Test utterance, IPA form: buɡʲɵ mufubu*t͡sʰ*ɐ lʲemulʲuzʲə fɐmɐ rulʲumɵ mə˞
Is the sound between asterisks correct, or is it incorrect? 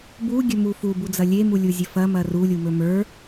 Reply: incorrect